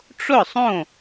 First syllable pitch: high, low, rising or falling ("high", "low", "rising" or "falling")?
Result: falling